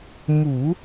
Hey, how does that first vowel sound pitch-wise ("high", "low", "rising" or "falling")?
low